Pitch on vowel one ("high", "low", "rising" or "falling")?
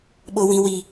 high